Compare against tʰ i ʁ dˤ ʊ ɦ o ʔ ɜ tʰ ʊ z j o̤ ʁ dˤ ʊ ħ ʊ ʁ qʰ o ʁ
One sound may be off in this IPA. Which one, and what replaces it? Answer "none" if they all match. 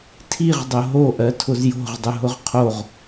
ħ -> ɦ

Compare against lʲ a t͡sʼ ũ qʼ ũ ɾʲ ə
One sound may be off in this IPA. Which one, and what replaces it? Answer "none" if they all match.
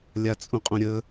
none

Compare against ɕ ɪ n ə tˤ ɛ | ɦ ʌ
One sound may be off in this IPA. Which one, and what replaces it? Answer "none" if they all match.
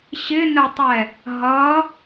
none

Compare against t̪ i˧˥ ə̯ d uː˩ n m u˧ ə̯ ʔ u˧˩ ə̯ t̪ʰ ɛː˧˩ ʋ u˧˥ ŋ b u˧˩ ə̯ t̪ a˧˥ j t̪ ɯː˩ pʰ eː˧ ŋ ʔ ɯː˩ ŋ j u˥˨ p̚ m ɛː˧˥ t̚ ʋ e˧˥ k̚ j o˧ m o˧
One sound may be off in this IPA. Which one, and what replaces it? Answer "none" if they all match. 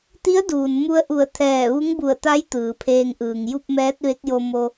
none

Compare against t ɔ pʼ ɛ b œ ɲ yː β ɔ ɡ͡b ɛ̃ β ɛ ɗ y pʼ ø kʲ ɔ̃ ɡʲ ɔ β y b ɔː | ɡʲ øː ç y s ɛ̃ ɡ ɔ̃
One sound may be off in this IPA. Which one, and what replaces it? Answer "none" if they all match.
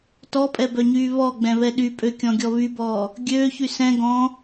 none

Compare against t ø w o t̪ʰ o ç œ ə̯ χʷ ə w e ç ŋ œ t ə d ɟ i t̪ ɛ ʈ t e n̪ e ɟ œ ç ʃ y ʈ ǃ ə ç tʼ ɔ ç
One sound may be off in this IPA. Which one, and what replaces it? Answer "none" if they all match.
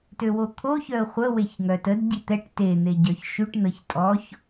ǃ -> n̪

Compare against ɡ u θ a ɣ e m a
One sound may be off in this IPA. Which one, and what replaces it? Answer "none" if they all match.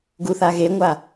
m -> ŋʷ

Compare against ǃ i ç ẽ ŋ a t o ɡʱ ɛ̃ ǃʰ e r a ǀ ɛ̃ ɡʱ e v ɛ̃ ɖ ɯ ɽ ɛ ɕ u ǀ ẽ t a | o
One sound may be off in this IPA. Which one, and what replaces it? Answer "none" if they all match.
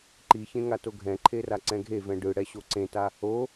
u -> o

